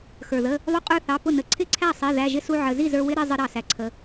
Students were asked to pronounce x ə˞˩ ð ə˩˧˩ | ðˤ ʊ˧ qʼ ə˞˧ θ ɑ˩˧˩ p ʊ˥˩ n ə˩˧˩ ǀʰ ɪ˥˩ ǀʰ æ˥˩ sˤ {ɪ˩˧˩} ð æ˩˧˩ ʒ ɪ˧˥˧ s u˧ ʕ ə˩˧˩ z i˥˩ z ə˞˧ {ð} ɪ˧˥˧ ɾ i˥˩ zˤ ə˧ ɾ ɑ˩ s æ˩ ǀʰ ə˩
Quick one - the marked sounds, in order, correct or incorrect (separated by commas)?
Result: incorrect, incorrect